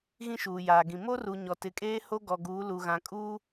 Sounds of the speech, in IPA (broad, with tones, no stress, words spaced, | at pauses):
ɣĩ˦ʃuː˨jaː˨ɡĩ˨ mo˦ru˨ ɲɔ˨tɪ˨˦kʼeː˦ ho˦ɡɔ˨ɡuː˨˦ lu˨ɣã˨ kʼuː˦